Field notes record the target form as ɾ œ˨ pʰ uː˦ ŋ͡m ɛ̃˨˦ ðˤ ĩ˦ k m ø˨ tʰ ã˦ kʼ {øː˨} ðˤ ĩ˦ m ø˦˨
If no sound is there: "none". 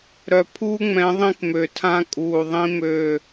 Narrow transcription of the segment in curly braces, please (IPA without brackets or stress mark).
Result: uː˨